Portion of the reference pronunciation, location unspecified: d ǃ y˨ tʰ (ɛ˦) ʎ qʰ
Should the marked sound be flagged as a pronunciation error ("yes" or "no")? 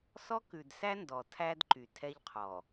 no